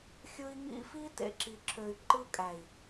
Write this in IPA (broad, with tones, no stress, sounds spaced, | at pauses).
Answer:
xʲ ɯ˦ i̯ ŋ ḭ˦ f i˦ t ḛ˨ ǁ i˨ ǁʰ ø˨ y̯ ǃ ɯ˦ kʼ æ˨ i̯